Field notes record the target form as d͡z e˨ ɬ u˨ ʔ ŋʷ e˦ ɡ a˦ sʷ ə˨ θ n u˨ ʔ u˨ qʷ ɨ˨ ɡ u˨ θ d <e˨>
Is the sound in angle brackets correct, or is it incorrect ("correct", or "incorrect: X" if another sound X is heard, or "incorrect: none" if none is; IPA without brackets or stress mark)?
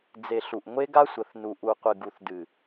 incorrect: ɨ˨